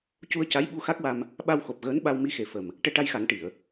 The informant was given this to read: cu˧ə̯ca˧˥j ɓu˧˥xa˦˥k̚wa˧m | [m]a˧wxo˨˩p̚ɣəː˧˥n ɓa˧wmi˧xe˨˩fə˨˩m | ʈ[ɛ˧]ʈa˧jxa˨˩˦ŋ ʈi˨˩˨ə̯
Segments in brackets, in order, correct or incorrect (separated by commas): incorrect, correct